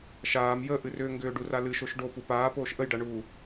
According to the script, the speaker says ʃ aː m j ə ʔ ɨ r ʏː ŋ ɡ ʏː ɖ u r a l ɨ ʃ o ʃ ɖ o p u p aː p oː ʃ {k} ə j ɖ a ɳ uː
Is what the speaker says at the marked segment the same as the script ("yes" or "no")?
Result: no